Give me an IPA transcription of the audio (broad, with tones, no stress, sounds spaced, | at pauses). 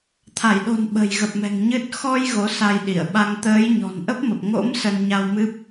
t̪ʰ a˧˩ j ɗ o̤˨˩ n ɓ ə̤˨˩ j ɣ ə˨˩ p̚ m ɛ̤˨˩ ŋ ɲ ɨ˦˥ t̚ x ɔ˧ j ɣ o˨˦ s a˧ j ɗ i˧˩ ə̯ ɓ a˧ ŋ t̪ əː˨˦ j ɲ ɔ̤˨˩ n ʔ ə˦˥ p̚ m ə˨˩ p̚ ŋ o̰˧˥ m s ə˧ n ɲ a˧ w m ɨ˦˥ p̚